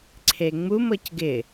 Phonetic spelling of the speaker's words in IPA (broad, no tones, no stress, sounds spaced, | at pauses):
ǀʰ e ŋ͡m u m ɤ c ɡ ɪ